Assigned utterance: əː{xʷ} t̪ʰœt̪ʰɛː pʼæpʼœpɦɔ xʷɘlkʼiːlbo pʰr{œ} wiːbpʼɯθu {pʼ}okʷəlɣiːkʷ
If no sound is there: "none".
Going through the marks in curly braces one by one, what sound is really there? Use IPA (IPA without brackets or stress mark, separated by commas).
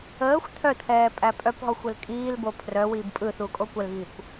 xʷ, œ, kʼ